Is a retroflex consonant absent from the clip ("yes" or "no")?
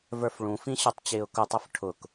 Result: no